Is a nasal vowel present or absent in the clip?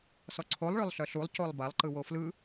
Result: absent